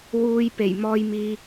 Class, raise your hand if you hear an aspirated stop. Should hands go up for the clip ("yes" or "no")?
no